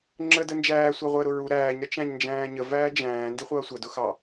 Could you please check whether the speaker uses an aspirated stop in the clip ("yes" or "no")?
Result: no